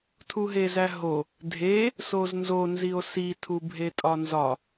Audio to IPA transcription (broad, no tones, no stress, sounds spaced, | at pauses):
tʰ u ɦ e z æ ɦ o | dʱ e | s o z n z o n z i o̯ s i tʰ u bʱ e tʼ ɒ n z ɒ